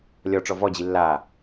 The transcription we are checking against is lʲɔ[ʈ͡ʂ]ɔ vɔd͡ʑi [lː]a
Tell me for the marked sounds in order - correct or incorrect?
correct, correct

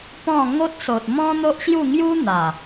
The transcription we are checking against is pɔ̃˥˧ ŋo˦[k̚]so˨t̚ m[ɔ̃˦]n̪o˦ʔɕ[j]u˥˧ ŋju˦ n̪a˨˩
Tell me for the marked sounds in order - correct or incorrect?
incorrect, correct, correct

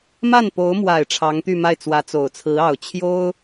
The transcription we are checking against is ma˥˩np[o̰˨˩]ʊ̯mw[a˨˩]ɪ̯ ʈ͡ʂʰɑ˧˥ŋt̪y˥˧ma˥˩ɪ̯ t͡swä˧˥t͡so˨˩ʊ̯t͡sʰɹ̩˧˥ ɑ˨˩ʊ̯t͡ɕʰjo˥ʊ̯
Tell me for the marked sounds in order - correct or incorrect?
incorrect, correct

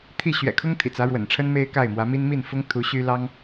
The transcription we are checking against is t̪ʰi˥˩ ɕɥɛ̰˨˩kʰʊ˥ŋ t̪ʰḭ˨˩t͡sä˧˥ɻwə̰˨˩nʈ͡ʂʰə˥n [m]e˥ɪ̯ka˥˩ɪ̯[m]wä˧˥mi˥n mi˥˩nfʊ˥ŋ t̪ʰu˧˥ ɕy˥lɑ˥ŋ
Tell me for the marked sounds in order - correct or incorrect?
correct, correct

